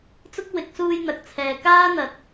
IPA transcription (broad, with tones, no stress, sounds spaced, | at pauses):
t͡s ʊ˥ k̚ w ɪ˨˥ k̚ s uː˧ j n̪ ɐ˨ k̚ t͡sʰ ɛː˨ k aː˥ n̪ ɐ˨ t̚